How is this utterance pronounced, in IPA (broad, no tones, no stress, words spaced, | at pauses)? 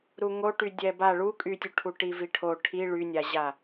ɾuŋoʈy dʲɛba ɭu kʼytʲuʈʰu ʈiviʈʰo ʈʰi ɭynʲaʑa